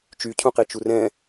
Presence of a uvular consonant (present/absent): present